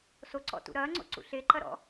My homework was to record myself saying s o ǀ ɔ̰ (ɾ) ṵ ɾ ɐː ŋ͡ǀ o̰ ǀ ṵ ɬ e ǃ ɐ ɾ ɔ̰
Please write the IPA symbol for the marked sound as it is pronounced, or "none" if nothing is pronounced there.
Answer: t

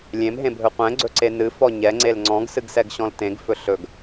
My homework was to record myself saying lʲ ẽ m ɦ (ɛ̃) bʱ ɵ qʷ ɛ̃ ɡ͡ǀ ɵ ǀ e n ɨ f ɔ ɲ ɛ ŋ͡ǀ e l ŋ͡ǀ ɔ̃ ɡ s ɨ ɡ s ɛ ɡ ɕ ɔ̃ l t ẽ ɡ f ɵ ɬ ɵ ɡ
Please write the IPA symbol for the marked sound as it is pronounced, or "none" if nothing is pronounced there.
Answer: ẽ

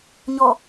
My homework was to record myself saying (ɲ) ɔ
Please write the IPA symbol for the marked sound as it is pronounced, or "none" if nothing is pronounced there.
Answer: ɲ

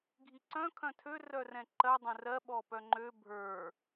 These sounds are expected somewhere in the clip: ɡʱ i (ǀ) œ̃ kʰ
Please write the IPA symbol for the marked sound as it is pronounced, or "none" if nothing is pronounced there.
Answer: ǀ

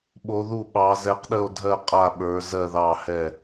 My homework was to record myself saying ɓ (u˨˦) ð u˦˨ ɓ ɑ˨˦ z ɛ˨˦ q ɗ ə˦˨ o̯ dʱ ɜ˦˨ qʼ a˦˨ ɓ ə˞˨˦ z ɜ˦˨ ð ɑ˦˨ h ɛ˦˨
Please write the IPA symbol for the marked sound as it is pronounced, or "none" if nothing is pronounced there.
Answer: o˨˦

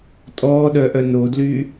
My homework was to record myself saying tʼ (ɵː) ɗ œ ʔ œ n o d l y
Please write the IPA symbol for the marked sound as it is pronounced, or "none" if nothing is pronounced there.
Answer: ɔː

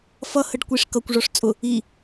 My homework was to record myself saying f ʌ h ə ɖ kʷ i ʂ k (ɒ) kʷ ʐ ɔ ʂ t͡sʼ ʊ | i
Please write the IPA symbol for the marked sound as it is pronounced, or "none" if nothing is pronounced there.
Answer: ʌ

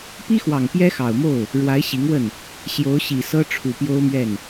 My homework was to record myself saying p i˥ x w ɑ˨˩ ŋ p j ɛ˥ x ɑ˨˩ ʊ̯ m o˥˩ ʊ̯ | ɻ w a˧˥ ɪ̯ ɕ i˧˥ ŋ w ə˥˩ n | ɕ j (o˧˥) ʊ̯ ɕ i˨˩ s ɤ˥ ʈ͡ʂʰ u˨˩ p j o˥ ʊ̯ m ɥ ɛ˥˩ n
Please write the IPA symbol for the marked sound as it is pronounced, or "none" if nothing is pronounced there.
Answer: o˧˥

